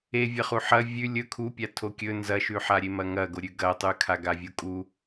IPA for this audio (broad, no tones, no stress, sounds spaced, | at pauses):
e vʲ ɐ χ u ħ ɐ vʲ ʉ lʲ ɵ kʰ u pʲ a tʰ o kʲ ɵ n z ɐ ʃ ʉ ħ a ɾʲ e m ɐ ŋ ɐ ɡ o ɾʲ ʉ ɡ ɐ tˤ ʉ kʰ a ɡ a vʲ u kʼ u